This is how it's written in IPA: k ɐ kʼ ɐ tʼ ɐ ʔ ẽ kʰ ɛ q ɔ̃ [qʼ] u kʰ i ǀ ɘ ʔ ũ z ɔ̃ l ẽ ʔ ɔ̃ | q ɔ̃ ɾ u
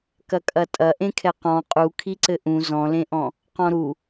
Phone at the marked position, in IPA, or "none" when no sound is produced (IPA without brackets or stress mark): qʼ